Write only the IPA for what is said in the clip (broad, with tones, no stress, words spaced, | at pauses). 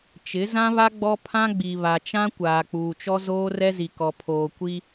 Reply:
t͡ʃɪ˨˦zã˦βa˦ ɡ͡bɔ˦pʰã˦ɡ͡bi˨ βa˨t͡ʃã˦ kʷaː˨k͡puː˨t͡ʃɔ˦ zoː˦rɛ˦zi˨kɔ˨ pʰoː˨kʷi˦